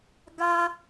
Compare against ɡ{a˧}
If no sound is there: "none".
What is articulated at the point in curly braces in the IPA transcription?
a˧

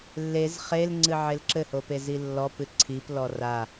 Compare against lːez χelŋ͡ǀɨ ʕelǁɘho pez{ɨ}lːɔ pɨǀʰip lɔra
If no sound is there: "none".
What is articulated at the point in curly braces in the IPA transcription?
i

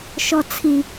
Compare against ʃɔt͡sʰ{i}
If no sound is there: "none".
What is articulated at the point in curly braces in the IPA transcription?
i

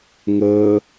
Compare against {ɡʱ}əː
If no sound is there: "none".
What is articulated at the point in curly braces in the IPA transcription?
ŋ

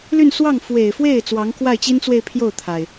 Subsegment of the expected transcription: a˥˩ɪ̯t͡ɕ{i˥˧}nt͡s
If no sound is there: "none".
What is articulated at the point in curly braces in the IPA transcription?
i˥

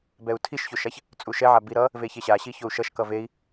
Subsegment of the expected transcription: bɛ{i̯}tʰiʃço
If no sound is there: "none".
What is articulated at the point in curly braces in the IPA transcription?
u̯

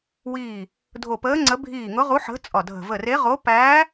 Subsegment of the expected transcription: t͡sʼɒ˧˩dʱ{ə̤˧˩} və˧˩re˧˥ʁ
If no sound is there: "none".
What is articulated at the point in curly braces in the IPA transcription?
ə̤˧˩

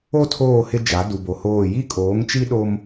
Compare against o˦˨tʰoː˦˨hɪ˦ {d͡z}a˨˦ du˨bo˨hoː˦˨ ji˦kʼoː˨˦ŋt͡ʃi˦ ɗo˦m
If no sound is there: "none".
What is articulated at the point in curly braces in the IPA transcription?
d͡ʒ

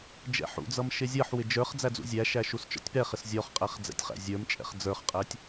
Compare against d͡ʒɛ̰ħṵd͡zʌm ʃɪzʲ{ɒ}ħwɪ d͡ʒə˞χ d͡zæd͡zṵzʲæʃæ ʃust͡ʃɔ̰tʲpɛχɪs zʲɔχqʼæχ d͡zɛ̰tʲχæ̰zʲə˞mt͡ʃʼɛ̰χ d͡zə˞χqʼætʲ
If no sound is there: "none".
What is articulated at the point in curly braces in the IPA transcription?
ʌ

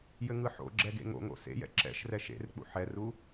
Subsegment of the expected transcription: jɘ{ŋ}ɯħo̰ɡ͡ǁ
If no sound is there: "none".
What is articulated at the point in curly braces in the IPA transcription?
ŋ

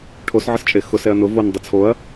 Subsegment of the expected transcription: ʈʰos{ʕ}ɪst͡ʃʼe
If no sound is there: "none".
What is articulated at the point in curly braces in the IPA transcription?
ʕ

